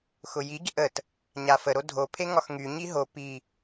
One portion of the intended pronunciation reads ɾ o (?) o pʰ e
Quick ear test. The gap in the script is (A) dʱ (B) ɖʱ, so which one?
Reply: A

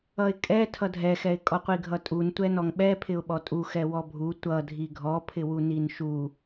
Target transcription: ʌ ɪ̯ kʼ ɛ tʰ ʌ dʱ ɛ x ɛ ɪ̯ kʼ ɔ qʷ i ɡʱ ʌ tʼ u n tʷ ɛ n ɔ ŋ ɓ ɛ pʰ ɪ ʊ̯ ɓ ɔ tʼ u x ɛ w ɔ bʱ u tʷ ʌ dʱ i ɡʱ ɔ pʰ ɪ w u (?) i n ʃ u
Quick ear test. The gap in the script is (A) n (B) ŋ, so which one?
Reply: A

